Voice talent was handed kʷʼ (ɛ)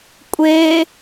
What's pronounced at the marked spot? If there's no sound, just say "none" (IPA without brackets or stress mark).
e